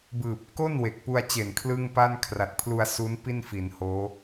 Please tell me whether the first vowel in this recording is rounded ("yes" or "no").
no